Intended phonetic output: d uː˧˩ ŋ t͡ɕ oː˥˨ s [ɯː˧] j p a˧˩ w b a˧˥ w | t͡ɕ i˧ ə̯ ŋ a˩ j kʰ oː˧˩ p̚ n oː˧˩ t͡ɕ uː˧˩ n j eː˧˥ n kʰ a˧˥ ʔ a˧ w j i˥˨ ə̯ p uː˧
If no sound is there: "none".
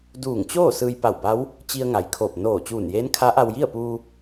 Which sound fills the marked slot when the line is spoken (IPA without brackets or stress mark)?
ɯː˧